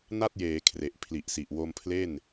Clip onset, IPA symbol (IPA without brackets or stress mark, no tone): n